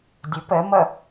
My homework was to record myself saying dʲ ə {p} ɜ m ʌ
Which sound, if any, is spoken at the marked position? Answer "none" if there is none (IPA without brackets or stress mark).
p